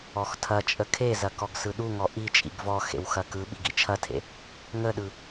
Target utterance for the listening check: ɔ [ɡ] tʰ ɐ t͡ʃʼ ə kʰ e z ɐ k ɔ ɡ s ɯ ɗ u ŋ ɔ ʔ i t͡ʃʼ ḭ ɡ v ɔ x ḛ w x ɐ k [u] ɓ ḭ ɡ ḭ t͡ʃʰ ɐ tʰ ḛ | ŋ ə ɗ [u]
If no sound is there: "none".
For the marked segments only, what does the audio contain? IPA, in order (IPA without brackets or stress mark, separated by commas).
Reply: x, ɯ, ɯ